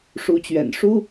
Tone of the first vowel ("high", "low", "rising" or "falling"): rising